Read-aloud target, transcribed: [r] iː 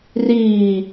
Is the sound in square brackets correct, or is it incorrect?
correct